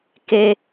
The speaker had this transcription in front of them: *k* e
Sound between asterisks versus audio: correct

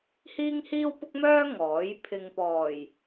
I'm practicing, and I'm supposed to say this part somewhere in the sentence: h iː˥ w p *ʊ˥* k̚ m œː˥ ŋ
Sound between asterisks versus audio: correct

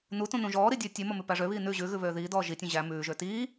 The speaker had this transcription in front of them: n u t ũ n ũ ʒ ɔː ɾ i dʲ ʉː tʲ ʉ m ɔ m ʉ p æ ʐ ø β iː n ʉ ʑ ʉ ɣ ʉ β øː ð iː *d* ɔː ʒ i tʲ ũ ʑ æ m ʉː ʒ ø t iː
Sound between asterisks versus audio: correct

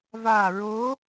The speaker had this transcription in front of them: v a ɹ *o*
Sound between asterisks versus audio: correct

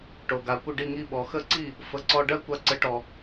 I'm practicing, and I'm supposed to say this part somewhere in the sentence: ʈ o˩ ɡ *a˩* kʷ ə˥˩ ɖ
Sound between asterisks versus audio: correct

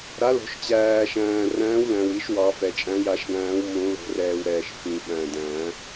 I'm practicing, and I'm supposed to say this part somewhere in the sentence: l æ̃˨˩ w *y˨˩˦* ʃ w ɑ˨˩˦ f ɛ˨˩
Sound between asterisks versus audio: incorrect: i˨˩˦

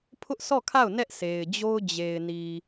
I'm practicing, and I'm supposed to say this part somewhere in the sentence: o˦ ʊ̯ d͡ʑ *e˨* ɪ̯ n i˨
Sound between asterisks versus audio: correct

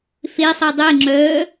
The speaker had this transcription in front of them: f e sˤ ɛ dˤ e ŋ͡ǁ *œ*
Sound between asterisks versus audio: correct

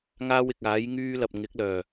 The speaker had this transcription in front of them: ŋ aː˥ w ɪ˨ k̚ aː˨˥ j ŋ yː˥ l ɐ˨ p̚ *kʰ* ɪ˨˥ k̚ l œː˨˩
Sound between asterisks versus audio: incorrect: ŋ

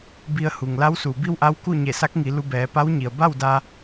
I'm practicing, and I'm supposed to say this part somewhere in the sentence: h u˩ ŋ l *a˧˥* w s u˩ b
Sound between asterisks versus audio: correct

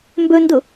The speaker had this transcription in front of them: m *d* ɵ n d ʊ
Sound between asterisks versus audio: incorrect: b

